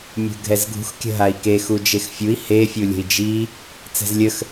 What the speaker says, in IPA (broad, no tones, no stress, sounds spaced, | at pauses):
mʲ ṳ ɡʱ ɛ z ɡʱ ṳ x kʲ ə̤ ɦ a i̯ k e x u d͡ʒ e x fʲ u i̯ h e fʲ u lʲ ə̤ i̯ d͡ʒ i | t͡s ɛ̤ z lʲ ə x